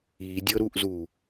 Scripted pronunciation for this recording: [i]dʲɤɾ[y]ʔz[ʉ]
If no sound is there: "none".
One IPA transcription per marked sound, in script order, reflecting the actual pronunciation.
i, u, u

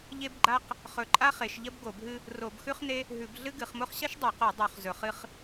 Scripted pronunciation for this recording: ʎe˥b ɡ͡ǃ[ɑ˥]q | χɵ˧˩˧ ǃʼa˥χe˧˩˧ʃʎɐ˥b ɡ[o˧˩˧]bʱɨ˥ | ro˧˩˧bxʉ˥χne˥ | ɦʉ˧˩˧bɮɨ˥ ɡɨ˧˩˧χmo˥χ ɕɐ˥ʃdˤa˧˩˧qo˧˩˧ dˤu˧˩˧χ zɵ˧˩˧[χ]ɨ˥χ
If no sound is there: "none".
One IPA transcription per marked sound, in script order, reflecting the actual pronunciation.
a˥, o˧˩˧, χ

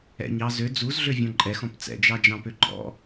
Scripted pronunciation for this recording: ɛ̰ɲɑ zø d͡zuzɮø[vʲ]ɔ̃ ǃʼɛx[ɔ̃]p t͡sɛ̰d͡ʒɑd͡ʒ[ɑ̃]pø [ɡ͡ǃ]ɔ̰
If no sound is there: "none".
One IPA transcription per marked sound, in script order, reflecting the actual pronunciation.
vʲ, ɔ̃, ɑ̃, ɡ͡ǃ

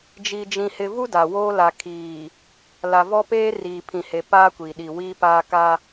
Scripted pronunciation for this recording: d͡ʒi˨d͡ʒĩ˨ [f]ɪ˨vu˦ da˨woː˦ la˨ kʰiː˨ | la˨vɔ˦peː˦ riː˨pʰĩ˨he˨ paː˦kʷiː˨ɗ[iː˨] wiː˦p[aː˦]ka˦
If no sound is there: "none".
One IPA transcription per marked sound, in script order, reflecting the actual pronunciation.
h, i˨, aː˦

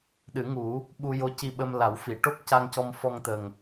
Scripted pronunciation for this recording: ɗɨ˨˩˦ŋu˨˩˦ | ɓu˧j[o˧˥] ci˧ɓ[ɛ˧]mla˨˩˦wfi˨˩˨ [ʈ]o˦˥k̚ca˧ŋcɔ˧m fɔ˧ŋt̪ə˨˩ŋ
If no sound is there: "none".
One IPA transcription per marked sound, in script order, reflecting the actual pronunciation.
o˧˥, ə˧, ʈ

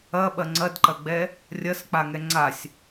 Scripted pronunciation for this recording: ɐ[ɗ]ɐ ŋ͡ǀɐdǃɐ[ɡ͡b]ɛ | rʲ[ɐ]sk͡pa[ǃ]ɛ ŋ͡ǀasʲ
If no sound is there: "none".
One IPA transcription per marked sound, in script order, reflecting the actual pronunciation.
ɓ, ɡ͡b, ɐ, ŋ

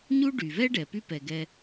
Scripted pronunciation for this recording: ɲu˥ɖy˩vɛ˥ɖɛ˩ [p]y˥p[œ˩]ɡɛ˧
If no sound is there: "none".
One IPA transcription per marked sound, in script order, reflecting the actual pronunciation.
p, ɛ˩

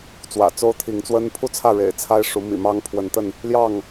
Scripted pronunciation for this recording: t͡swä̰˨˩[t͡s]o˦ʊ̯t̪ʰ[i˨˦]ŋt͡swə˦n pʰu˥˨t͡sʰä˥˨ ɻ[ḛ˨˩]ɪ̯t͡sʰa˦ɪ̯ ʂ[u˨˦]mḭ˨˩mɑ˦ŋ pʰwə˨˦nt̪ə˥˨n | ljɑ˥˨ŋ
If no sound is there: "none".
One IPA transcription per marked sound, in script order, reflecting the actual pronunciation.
t͡s, i˨˦, ḛ˨˩, u˨˦

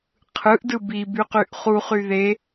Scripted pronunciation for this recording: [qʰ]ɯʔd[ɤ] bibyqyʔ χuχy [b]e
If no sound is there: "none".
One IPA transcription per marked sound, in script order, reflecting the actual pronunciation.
qʰ, ɯ, ð

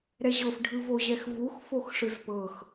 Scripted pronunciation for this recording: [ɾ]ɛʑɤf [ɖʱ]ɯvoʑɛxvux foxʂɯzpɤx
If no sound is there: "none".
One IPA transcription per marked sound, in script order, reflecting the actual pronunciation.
ɾ, ɖʱ

